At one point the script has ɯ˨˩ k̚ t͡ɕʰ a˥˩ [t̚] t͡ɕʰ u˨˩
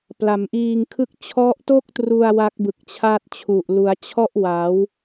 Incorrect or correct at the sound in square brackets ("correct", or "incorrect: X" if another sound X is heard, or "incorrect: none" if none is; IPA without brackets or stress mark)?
correct